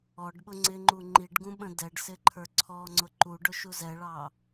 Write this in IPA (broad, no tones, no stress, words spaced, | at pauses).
ɔɖɓʊ ŋ͡ǀɪŋ͡ǃu ŋ͡ǃiɖɡũ ɓə̃dɛɖsɪ ǃʰə˞ǀʰɔŋ͡ǀʊ ǃu ɖʊʃuzɛɭɑ